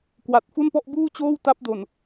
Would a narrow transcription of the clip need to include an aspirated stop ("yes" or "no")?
no